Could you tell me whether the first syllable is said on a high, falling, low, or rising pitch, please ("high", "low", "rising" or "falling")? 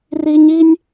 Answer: high